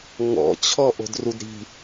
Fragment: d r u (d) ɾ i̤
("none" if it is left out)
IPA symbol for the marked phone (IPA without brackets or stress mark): d